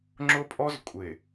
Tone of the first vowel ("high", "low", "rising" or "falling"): high